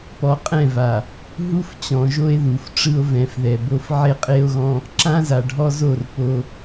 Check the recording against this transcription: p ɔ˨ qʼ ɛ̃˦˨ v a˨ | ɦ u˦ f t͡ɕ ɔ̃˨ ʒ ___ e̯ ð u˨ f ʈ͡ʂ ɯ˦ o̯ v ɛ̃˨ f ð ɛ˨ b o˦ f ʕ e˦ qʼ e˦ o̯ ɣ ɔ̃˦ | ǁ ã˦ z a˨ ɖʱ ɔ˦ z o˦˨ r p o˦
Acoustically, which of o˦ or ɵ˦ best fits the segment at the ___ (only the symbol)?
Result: o˦